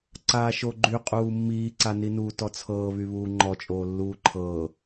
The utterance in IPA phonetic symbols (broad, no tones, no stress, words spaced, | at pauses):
ǀaːʃoɡ͡ǃyqʼuː mːiːǀaninuː tɔt͡sʰɤːβy βuːŋ͡ǃɔt͡ʃʼoː lːuːǃʰɤː